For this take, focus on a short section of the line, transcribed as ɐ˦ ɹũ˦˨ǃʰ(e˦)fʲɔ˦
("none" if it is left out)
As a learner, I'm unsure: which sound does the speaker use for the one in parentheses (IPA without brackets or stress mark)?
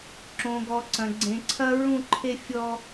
e˦